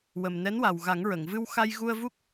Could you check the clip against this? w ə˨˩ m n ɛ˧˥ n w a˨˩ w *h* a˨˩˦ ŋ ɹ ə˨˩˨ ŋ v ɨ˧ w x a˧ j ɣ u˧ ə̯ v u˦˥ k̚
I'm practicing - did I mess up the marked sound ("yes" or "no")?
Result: yes